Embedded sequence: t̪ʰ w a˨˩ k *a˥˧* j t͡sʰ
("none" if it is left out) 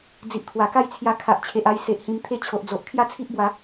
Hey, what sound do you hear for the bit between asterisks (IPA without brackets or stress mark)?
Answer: a˥˧